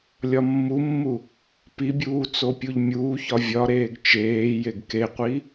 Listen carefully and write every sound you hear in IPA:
lʲ ɒ mː u mː u | p i bʲ uː t͡s o pʲ u ʎ mʲ uː ç ɒ vʲ ɒ ɾ eː ɡ t͡ʃ eː j e ɡ k e qʷ i

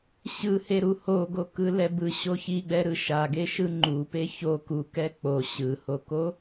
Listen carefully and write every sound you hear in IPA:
ɕ ɯ h e ɾ u h o ɡ o k ɯ l ɛ b ɯ ɕ o ç i ɡ͡b ɛ ɾ ɯ ʃ a ɡ e ʃ ɯ ŋ͡ǃ u p e ç o k u k ɛ k͡p o ɕ ɯ h o k o

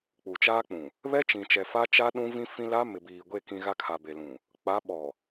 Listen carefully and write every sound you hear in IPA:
k͡p u˨ t͡ʃ aː˦ k͡p ũ˨ | β ɛ˦ t͡ʃ ĩ˨ t͡ʃ ɛ˨ f a˦ t͡ʃ a˦ ɗ ũ˦ v ĩ˦ f ĩ˦ l a˦ m ɪ˨ b iː˨ ɡʷ e˦˨ k ĩ˦ ɣ a˦ kʰ a˨ b e˨ l ũ˨ | k͡p a˨˦ ɓ ɔ˨

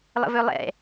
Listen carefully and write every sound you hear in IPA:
lˠ ə̰ v ø lˠ ɛ̰

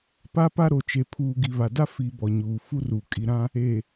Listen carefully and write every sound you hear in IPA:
p a˦ p a˦ ɾ o˨ t͡ʃ e˨ pʰ uː˨ ɡ i˨ β a˨ d a˦ f i˨ b ɔ˨ ɲ uː˨ f u˦ r uː˨ kʼ i˨ ɾ ã˦ | e˨

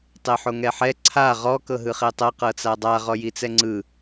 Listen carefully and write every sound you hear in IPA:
tˤ e ħ o ŋ ɛ ħ ɛ ǀʰ a ʁ ɔ k ɤ ɦ ɯ χ e tˤ ɤ q ɤ t͡s a dˤ a ʁ ɔ j i t͡s ɛ ŋ͡ǀ ɯ

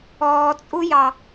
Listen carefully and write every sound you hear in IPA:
ɔː t͡sʼ u j ɑ

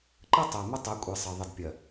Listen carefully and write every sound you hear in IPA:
ǃ ə˦ tˤ ɜ˨ m ʊ˦ tˤ ɜ˨˦ kʷʼ i˨ sˤ ɜ˨ ðˤ ə˨ d pʲ ɜ˨

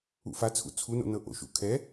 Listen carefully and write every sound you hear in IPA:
ṵ f a t͡sʰ ṵ t͡sʰ u n o̰ n ɤ ʔ o̰ ʃ ṵ kʰ ɛ

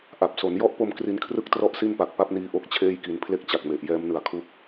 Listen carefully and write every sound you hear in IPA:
ʔ a˨˩ p̚ s o˩˦ n j ɔ˥˩ ʔ p o˧ m k r i˧ n kʰ r ɯ˥˩ k̚ t r ɔ˥˩ ʔ s i˥˩ n p a˨˩ k̚ p a˦˥ p̚ n iː˧ ʔ o˦˥ k̚ t͡ɕʰ eː˥˩ j k i˧ n pʰ l e˥˩ k̚ t͡ɕ a˨˩ k̚ m e˨˩ ʔ j ɛː˦˥ m n ɯ˨˩ a̯ kʰ u˥˩ k̚

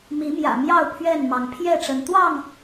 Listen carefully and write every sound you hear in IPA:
m i˨˦ m j ä̰˨˩ m j ɑ˥˨ ʊ̯ pʰ ɥ ɛ˥˨ n m ɑ˨˦ ŋ pʰ j ɛ˥˨ ʈ͡ʂ ə˨˦ n t̪ w ɑ˥˨ ŋ

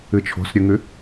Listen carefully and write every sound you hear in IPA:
ɨ t͡ʃʰ o̤ s ɾʲ ʉ ŋ ʉ

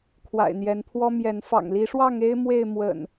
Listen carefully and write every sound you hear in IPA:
kʰ w a̰˨˩ ɪ̯ n̪ j ɛ˨˦ n pʰ w ɔ˦ m j ɛ˨˦ n f ɑ̰˨˩ ŋ l i˨˦ ʂ w ɑ˥˨ ŋ e˦ ɪ̯ m w e˥˨ ɪ̯ m w ə̰˨˩ n

